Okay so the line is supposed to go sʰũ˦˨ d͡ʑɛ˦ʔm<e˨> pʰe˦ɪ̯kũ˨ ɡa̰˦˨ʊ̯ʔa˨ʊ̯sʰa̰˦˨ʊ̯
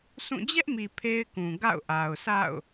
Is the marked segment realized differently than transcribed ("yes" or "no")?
yes